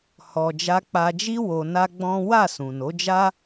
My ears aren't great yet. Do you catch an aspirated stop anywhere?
no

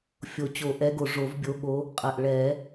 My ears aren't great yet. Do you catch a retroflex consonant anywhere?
yes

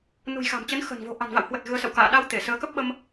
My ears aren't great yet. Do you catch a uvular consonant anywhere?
no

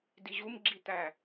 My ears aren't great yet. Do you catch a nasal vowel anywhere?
no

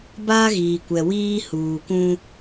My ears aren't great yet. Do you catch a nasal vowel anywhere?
yes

